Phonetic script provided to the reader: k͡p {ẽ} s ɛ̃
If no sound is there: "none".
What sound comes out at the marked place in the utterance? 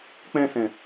ɛ̃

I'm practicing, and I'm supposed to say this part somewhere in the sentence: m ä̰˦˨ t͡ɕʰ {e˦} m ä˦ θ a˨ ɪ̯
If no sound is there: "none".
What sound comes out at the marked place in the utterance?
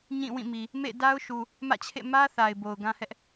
ḛ˦˨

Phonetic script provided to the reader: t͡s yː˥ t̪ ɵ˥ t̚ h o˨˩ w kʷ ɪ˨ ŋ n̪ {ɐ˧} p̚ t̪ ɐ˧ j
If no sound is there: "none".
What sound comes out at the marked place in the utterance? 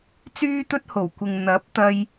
ɐ˨˥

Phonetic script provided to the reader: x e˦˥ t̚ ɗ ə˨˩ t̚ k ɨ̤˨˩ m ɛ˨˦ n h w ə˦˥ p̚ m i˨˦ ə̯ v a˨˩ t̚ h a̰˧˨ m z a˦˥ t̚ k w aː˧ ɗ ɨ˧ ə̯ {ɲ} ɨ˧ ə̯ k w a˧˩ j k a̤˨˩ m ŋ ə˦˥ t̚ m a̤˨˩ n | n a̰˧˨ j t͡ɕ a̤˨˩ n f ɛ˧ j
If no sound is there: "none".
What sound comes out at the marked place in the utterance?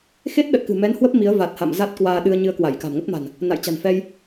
ɲ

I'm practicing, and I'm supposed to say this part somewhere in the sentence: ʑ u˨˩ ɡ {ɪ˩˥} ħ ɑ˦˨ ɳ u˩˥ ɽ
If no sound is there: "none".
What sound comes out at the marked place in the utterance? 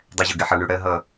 ɪ˦˨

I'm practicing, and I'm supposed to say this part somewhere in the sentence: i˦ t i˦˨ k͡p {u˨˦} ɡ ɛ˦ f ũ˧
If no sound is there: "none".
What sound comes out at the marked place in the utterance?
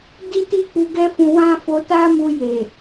u˧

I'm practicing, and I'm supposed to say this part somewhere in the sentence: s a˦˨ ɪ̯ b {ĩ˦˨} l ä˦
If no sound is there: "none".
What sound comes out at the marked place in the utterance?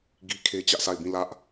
ĩ˦˨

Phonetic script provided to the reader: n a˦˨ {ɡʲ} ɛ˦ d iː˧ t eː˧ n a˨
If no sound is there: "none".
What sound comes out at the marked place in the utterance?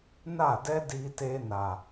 d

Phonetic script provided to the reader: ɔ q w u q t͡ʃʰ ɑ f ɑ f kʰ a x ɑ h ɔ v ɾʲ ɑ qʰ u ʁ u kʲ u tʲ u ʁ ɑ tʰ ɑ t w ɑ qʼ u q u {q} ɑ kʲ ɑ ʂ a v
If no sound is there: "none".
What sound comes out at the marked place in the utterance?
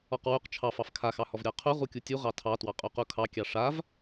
kʰ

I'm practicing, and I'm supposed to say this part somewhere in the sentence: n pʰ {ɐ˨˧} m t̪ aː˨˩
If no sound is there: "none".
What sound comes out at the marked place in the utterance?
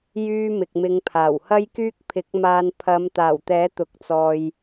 ɐ˨˧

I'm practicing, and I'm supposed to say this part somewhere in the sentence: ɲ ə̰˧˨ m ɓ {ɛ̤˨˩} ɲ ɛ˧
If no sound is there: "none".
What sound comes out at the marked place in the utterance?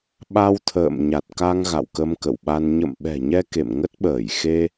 ɛ̤˨˩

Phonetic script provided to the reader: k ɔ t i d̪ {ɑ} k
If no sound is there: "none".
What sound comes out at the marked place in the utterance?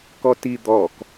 ɔ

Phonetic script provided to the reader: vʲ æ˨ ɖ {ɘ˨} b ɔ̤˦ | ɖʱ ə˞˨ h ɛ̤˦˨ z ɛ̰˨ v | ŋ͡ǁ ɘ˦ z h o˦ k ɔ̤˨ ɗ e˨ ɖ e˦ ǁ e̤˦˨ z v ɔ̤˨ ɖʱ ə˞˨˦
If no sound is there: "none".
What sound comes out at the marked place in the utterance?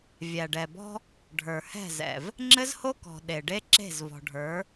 ɛ˨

